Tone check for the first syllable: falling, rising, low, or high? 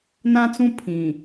high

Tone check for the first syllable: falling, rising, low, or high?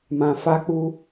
low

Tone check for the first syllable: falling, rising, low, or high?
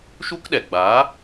high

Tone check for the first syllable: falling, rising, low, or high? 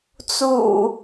low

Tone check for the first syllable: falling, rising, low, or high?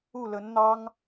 falling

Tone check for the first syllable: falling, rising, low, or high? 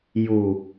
low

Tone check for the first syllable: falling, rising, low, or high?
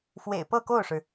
low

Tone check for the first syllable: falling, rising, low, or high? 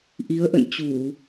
rising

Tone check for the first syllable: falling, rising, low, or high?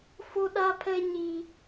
high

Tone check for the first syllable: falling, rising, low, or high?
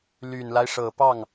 low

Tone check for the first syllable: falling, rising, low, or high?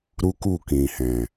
high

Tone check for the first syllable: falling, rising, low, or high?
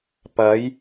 rising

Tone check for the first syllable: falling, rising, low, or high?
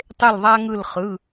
falling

